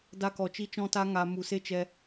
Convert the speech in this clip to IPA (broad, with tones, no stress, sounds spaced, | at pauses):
d a˧ k ɔ˨ t͡ʃ i˧ t͡ʃ ɔ̃˧ t a˧ ŋ a˨ m u˨ s e˦ t͡ʃ ɛ˧